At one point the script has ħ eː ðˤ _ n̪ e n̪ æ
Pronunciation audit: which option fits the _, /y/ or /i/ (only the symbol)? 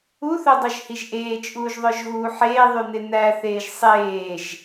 y